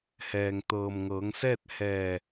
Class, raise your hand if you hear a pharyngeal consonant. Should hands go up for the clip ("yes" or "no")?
no